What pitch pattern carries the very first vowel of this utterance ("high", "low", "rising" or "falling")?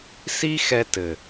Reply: high